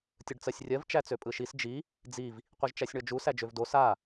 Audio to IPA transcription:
tʲ ɯ ɖ t͡s ɜ sʲ rʲ ɜ v t͡ʃ æ t͡s ø pʼ ɯ ʃ i s d͡ʒ i | d͡z i v | qʷ i ʒ t͡ʃ æ sʲ ɳ ɔ d͡ʒ u s æ d͡ʒ ø v d o s a

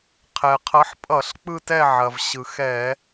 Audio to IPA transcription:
qʰ ɛ˩ qʰ ʌ˨˦ ħ pʼ ʌ˧˩˧ ɬ k͡p ɯ˦˨ t ɛ˦˨ ʕ ɐ˩ v ɕ ɯ˩ x ɛ˧˩˧

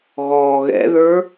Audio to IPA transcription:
ɣ ɔː ɣ ɛ̰ ð ə˞

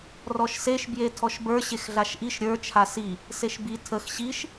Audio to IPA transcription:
r ɔ ʃ s e ʃ b j e tʰ ɔ ʃ b ə˞ ɕ e x ɮ a ʃ ʔ i ʃ ɾʲ ə˞ t͡ʃʰ a s i | s e ʃ b i tʰ ə x ɕ i ʃ

